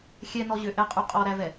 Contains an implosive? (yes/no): no